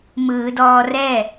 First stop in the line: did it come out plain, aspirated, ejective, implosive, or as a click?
plain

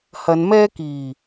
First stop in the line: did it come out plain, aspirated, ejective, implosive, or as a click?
plain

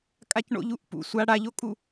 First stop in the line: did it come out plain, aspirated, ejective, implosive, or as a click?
ejective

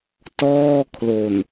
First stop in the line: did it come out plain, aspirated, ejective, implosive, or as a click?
plain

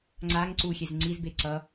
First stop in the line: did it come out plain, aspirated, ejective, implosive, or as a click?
click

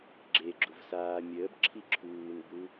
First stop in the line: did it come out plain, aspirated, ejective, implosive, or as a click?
click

